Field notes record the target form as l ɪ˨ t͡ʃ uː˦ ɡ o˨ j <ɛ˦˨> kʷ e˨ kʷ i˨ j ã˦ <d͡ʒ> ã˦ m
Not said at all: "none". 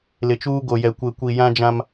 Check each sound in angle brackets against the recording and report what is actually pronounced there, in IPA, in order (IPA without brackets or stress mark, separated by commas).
ɛ˨, d͡ʒ